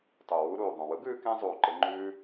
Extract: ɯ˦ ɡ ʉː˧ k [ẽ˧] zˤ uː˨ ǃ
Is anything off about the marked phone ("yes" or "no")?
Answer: no